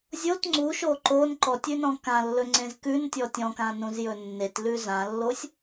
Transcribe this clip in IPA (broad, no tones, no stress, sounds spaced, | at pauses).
zʲ o t ŋ͡ǀ u ʃ o ǃ o n ǃ ɔ tʲ ʉ n ɔ̃ k ã lː ɵ ŋ͡ǀ ẽ z k ʉ n tʲ ɔ tʲ ɔ̃ k ã n ũ z j ɵ nː e t l ʉ z ã lː o sʲ